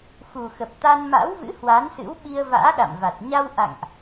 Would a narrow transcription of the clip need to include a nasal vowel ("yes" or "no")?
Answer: no